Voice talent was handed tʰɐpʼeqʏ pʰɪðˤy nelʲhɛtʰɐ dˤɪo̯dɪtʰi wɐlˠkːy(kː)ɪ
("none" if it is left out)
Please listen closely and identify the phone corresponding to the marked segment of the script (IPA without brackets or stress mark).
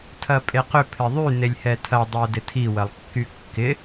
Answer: kː